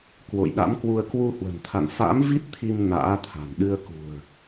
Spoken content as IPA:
k w o̰˧˨ j ɗ a̰˧˥ m k w u˧ ə̯ k w u˧ h w ə̤˨˩ n t̪ʰ a̰˧˨ n f a̰ː˧˥ m v i˦˥ t̚ t̪ʰ i˧ m n a̰ː˧˥ t̪ʰ a̤˨˩ n ɗ ɨ˧ ə̯ k ṳ˨˩ ə̯

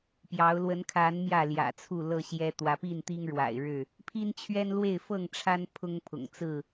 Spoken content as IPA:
p j ɑ˨˦ ʊ̯ l w ə˨˦ n kʰ a˨˦ n m j ä˥˨ l j ä̰˨˩ t͡sʰ u˥˨ l ɤ˥˨ ɕ j ɛ˦ t̪ w ä˨˦ p i˥˨ n t̪ i˦ ŋ ɻ w a̰˨˩ ɪ̯ ɻ ɻ̩˥˨ | pʰ i˦ n t͡ɕʰ ɥ ɛ˦ n l w e˥˨ ɪ̯ f ɤ˥˨ ŋ ʈ͡ʂʰ a˦ n pʰ ʊ˦ ŋ pʰ ʊ̰˨˩ ŋ t͡s ɹ̩˥˨

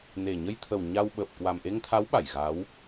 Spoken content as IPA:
n e˨˩ ɲ ə˧ j t̪ʰ ə˨˩ w ɲ a˧ w ɓ əː˨˩ p̚ k w a˨˩ m ʔ e˧ ŋ t̪ʰ a˨˦ w ɓ a˧˩ j ɣ a˨˦ w

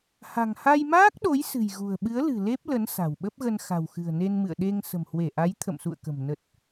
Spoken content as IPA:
h a̤˨˩ ŋ h a˧ j m aː˦˥ k̚ ɗ o˨˦ j s ɨ̤˨˩ j ɣ ṳ˨˩ ə̯ ɓ ɨ˨˦ ə̯ l ɨ̤˨˩ l e˦˥ p̚ l ə˨˦ n s a̤˨˩ w ɓ ə˦˥ p̚ ɣ ə˧ n x a̤˨˩ w x ɨ̤˨˩ ə̯ n e˧ n m ɨ̰˧˨ ə̯ ɗ e˧ ŋ s ə̤˨˩ m h w e˧˩ ʔ a˨˦ j t̪ʰ ə̰˧˨ m s ṵ˧˨ ə̯ k ə̤˨˩ m n ə˨˩ t̚

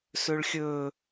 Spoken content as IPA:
s ɵ ɭ xʲ ɵ

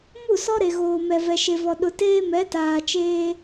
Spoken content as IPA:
m u˦˨ s ɔ˦ ɾ e˨ ɣ oː˨ m ɛ˨ v ɛ˨ ʃ e˨ v ɔ˨ ɗ ʊ˨ t eː˦ m ɛ˨˦ t aː˨ t͡ʃ eː˦

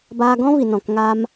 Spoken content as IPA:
b aː˧ ɡ ɔ̃˦ v i˨ n ɔ̃˨ k ŋ a˧ m

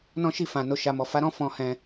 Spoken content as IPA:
n ɔ̃˦ ʃ i˦˨ f ã˨ n o˧ ʃ a˨ m ɔ˨ f a˧ ɾ ɔ̃˦ f ɔ̃˧ h ɛ̃˧

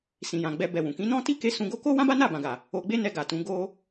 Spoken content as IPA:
s ĩ˨ j ã˨ ɡ͡b ɛ˧ b ɛ˧ w ũ˨ k ĩ˨˦ n ɔ̃˦ t i˦ k e˦ s ũ˧ ɡ o˦ k o˦ w ã˦ b a˦ n a˦˨ b ã˨ ɡ a˨ | o˧ ɡ͡b e˦ n ɛ˧ ɡ a˨ t ũ˨˦ ɡ o˦

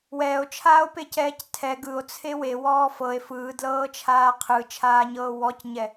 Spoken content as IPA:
w ɛː o̯ t͡ʃʰ aː o̯ p e c ɛː c tʰ ɛ ɡ ɯ o̯ t͡sʰ e w e w ɔː f ɤ e̯ f ɯː d l ɤː t͡ʃʰ aː qʰ ɯ t͡ʃʰ aː ɲ ɤː w ɔ c ɲ ɛ

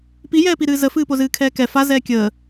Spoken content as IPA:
p i j ɛː p i ɾ ɨː z ə f ɨː p o z ɨː kʰ ɛː k ɛ f a z ɛː kʲ əː

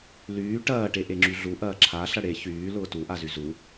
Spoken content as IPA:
l yː ʈ ɐː ʈ e ʔ e ŋ͡ǁ y ɮ u ʔ ɐː ǁʰ a ɬ ɐ ɽ e ç yː l ʊː t u ʔ a z y z u

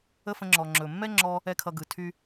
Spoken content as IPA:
ə˦ f ə̃˧ ŋ͡ǁ ɔ˨ ŋ͡ǁ ɵ˨ mː ɛ˦ ŋ͡ǁ ɔ˧ | ɛ˦ kʰ ʌ˧ ɡ ɯ˨ tʰ y˦

